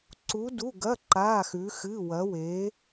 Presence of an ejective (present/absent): absent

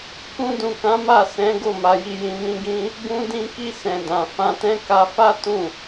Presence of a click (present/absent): absent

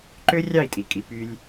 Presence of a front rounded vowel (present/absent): present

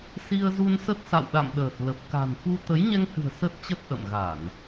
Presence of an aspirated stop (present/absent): absent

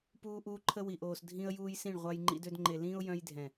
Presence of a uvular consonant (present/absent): present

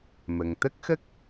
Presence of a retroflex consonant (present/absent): absent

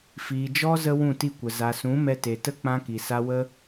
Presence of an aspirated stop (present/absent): absent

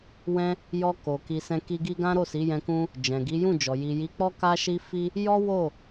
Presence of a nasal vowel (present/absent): present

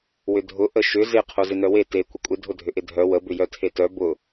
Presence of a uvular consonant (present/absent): present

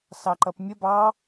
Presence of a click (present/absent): present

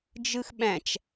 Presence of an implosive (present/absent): present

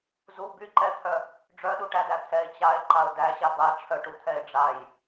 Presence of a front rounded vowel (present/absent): present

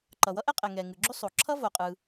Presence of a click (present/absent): present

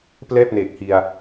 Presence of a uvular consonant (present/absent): absent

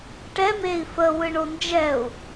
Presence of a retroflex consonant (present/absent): present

